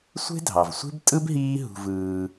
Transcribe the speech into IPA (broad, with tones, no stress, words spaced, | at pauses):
sʷe̤˥dʱɑ˩vsʷe̤˥b tʼɯ˥bɦiː˦ ɦṳ˨vɯː˨